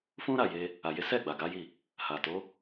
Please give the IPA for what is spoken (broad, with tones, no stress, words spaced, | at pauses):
fũ˦ɾa˦˨je˧ | a˨je˨˦ sɛ˦˨ ɡ͡ba˨ɡa˨˦ji˦˨ | ha˨to˨˦